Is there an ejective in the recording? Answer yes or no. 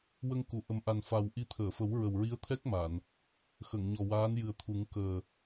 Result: no